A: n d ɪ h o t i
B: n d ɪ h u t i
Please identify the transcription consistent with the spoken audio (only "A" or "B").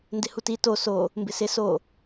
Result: B